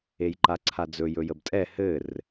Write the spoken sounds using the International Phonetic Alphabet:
e j ǃ a ǀʰ a d͡z ɵ j ɵ j ə b tʼ ɛ h ɘ r

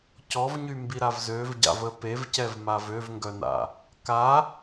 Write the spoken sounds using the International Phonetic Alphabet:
c ɔ v ɲ y m b i ɾ a v z ø v ɟ a̰ v ə p e v c ɛ v m a v ø v ŋ ɡ œ n a̰ | k a

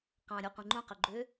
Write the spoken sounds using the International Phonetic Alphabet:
q ɑ̃ ɾʲ o qʷ ĩ ŋ͡ǃ ũ q ø ɡ͡ǃ ø

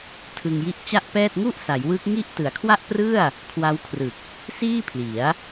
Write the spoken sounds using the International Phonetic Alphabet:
tʰ ɯ˧ ŋ j i˦˥ ʔ t͡ɕ a˥˩ ʔ p ɛː˥˩ t̚ ŋ u˥˩ ʔ s a˩˦ j w ɯ˦˥ k̚ ŋ i˥˩ ʔ t ɯ˩˦ a̯ kʰ w a˥˩ ʔ p r ɯ˥˩ a̯ | kʰ w a˦˥ w kʰ r ɯ˨˩ k̚ | s iː˥˩ pʰ l i˩˦ a̯

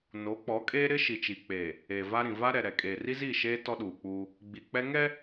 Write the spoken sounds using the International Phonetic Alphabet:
n o˨˦ k͡p ɔ˨˦ kʼ eː˦ ɾ ɪ˦ ʃ i˨ t͡ʃ i˨ k͡p eː˨ | eː˨ v a˦ ɾ ĩ˨ v a˦ ɾ ɛ˨ ɾ ɛ˨ kʼ eː˨ r i˦ z iː˦˨ ʃ eː˦ t ɔ˦ ɗ uː˨ k͡p uː˦ | ɡ͡b i˨ k͡p ɛ˦ ŋ ɛ˦

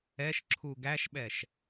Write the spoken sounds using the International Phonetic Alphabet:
ɛ ʃ ǁʰ u ɡ æ ʃ ɓ ɛ ʃ

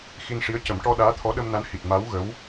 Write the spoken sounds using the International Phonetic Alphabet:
x i˧ n ʂ i˧˥ ə̯ c ə˨˩˦ m ʈ ɔ˧ ɗ aː˧˥ t̪ʰ ɔ˧˥ ɗ ə˧ m n a˧˥ n h i˨˩ t̚ m a˧˥ w ɣ ə˧˥ w

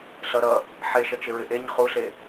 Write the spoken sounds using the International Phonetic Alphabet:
ɬ ʌ ɾ ʌ | ħ e ʃ ʌ t͡ʃ ɪ ɹ ɪ ʔ e ɲ χ u ɬ e

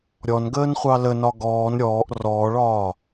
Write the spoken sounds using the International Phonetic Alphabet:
ɾʲ ɔ n ɡ əː n χʷ ɑ l ə n ɒ ɡ ɔː n ɾʲ ɔː ʔ r ɔː ɭ ɒː

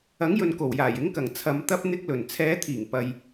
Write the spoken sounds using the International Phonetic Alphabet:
ɐ˨˥ ŋ j ɵ˨ n k o˨˩ w j aː˨˩ j ɪ˨˥ ŋ k ɐ˨˩ ŋ t͡sʰ ɐ˨˧ m t̪ ɐ˥ p̚ n̪ ɪ˧ k̚ l ɵ˨˩ n t͡sʰ ɛː˨˧ t̪ʰ iː˨˩ ŋ p ɐ˨ j

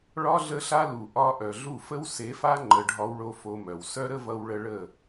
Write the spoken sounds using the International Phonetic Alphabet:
ɭ ɒ˦ ɮ ə˦ ɬ a˦ l u˨ ʔ ɒ˧ ʔ œ˨ ɮ u˦˨ f ə˦ w s e˨˦ f a˦ ŋ͡ǃ ə˧ ɖʱ ɒ˦ w ɭ o˦ f o˧ m œ˨ w s œ˦ ɾ ə˦ v ʌ˧ w ɭ ə˧ ɭ ə˦˨

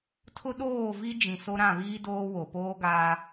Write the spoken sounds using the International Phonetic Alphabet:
tʰ ʊ˦ ɗ oː˦˨ v i˦ d͡ʒ ĩ˨ s o˦ ɾ ã˦˨ β iː˦ d oː˦ w o˨ p oː˦ ɡ aː˦

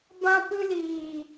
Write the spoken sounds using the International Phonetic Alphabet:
b ã˧ p ɨ˧ l iː˨

